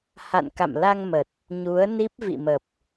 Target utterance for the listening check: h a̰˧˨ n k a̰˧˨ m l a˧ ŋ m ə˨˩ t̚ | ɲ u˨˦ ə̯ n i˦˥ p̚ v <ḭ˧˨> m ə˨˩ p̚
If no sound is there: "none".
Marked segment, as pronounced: ḭ˧˨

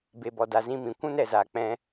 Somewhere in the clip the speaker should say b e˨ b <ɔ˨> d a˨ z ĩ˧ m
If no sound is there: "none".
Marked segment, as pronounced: ɔ˨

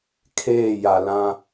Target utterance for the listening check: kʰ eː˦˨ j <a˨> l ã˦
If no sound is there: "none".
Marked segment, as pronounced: a˨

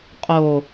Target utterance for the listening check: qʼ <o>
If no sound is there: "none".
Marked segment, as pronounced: o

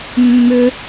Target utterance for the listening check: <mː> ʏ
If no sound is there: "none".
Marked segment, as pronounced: mː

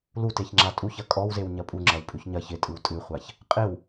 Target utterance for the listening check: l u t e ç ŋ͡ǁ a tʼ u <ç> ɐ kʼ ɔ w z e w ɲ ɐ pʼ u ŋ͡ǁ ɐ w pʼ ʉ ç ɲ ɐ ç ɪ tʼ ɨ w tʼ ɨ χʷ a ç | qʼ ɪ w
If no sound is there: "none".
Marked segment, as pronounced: ç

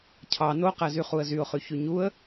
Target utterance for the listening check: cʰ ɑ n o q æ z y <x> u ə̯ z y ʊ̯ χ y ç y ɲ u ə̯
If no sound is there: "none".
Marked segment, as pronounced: χ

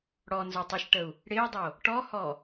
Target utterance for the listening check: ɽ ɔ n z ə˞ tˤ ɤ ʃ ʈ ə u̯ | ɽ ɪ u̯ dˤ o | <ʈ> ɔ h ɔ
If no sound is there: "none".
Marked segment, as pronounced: ʈ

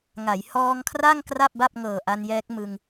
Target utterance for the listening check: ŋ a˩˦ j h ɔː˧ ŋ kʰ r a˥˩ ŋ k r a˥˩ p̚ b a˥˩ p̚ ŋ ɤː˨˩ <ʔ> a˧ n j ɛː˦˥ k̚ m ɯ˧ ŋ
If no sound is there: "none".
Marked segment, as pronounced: ʔ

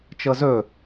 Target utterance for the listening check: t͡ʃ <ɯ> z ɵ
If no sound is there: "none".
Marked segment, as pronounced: ɤ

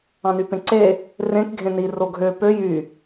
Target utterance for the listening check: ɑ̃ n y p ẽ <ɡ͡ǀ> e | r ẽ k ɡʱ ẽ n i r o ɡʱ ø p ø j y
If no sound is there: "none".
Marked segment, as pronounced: ǀ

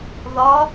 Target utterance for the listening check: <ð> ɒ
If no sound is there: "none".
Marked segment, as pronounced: ð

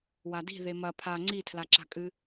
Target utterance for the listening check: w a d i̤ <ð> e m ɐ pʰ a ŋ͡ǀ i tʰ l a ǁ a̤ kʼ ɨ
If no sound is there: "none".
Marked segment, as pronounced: ð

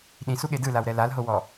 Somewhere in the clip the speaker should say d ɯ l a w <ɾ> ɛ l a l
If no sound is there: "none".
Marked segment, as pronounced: ɾ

